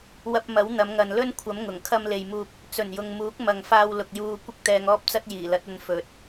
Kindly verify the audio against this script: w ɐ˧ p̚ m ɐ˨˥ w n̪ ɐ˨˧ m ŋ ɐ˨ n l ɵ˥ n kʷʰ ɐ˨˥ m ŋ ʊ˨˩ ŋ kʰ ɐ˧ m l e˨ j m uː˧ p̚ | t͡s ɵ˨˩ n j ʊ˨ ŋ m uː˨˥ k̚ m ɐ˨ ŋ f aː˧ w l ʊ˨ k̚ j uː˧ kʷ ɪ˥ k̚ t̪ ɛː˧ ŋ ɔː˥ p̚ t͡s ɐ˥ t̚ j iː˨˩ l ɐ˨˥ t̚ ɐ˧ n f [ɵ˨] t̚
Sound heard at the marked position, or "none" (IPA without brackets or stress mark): ɵ˨